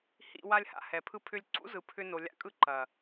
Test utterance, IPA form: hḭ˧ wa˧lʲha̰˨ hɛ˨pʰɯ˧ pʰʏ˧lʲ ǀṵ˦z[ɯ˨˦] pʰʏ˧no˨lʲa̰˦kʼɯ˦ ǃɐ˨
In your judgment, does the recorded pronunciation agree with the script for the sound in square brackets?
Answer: yes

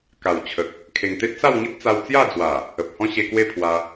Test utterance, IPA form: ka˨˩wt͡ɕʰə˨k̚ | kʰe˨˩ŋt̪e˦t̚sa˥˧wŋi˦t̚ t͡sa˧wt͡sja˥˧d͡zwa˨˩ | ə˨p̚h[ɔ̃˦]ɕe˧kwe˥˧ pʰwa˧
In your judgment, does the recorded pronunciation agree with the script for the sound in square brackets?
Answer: yes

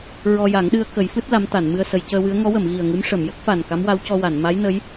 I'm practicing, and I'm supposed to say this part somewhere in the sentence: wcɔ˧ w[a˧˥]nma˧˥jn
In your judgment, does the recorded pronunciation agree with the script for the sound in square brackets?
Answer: no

